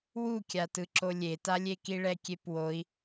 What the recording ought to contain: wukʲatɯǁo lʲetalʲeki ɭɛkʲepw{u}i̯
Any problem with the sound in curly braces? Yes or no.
yes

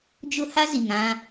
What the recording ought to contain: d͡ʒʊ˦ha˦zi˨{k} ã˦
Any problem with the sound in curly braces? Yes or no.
yes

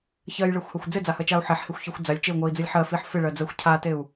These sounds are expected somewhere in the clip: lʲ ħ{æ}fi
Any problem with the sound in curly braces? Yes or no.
yes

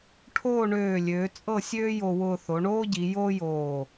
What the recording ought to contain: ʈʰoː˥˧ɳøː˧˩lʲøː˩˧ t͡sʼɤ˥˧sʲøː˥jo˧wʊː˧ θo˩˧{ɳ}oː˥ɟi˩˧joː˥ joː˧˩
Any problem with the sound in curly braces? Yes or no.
no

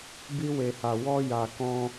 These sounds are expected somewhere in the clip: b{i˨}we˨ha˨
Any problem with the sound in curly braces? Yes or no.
yes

